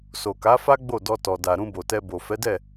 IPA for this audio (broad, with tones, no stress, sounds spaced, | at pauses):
s o˨ k a˨˦ f a˦ ɡ͡b o˦˨ d ɔ˧ t ɔ˨ d a˨ ɾ ũ˧ b o˨ t ɛ˧ b o˨ f ɛ˨˦ d ɛ˦˨